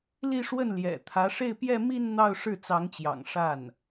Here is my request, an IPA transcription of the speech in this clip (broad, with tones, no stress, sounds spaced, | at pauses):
l i˥˧ ʂ w ə˥˩ n l j ɛ̰˨˩ t̪ʰ ä˧˥ ʂ e˥˧ ɪ̯ p j ɛ˥˧ m i˥˧ n n̪ ɑ˥˧ ʊ̯ ʂ ɻ̩˥˩ t͡s ɑ˧˥ ŋ t͡ɕ j ɑ̰˨˩ ŋ ʂ a˥˩ n